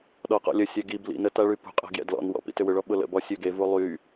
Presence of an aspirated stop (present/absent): absent